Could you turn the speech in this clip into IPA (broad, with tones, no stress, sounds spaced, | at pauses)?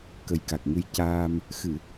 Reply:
k ə˨˩ j k a˨˩ k̚ ŋ ɨ˧ j c aː˧ m | x ɨ˨˩˨